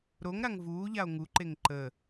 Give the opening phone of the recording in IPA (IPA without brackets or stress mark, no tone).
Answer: ɾ